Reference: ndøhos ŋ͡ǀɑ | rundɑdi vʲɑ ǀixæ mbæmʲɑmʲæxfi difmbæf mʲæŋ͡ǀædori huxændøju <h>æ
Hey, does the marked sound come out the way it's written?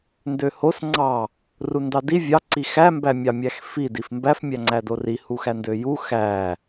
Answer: no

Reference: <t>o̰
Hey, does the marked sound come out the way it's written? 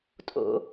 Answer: no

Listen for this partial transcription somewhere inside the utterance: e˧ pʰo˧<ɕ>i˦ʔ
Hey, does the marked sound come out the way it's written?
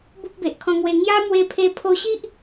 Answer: yes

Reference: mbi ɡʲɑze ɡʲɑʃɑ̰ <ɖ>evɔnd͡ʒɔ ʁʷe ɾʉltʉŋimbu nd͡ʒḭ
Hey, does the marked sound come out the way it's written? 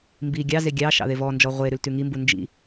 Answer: no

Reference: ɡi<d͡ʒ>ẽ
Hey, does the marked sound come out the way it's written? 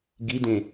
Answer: no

